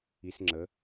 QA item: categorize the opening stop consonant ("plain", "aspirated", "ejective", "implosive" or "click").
click